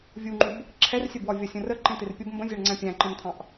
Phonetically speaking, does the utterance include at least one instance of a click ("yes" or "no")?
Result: yes